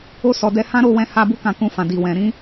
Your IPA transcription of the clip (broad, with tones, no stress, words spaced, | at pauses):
o˧sɔ˨dɛ˧ hã˦ɾo˦˨wɛ̃˧ ha˧bu˦ kã˧kũ˧fã˨ di˨wɛ̃˨ ɾĩ˨˦